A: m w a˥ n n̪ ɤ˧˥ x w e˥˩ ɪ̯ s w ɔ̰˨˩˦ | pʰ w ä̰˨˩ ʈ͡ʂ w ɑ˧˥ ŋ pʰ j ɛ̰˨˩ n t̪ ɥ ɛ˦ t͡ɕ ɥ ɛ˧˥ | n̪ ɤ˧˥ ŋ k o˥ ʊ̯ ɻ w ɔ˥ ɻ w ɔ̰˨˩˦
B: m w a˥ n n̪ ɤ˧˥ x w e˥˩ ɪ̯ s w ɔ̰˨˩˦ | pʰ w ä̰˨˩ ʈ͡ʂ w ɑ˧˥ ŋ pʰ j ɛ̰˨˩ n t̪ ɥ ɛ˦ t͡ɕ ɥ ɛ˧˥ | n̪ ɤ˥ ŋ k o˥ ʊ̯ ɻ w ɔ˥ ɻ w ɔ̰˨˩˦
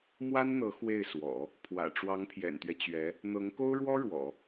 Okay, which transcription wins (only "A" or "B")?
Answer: A